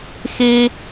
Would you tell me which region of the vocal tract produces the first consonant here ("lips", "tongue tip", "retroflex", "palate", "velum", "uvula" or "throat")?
velum